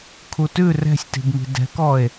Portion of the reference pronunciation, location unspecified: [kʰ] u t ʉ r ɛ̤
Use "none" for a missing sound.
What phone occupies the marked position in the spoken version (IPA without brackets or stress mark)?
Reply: kʰ